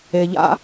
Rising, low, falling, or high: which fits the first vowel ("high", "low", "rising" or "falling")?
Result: low